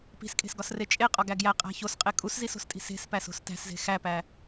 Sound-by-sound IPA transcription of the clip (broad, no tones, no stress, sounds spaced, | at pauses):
p i̤ s kʼ e̤ s ɡ ɒ s r e t͡ʃʼ e qʼ ɒ ɡ æ ɡ j æ qʼ æ̤ ç o s qʼ e kʼ u s z i s o̤ s tʼ i̤ s e̤ s p æ s o̤ s t æ̤ s z e̤ x æ p æ